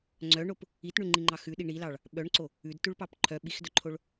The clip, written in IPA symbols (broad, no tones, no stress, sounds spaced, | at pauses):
ŋ͡ǀ œ ɳ o p | i t ɳ ʉ ŋ͡ǃ i ŋ͡ǃ ɑ x ʉ ɗ i ɳ i l ɑ ɭ | ɓ œ ɳ ǀ o | ʉ d t ʉ ɭ p ɑ p ǃʰ œ ɓ i x d œ ǃʰ o ɭ